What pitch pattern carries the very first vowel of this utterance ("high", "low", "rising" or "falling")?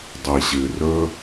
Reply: low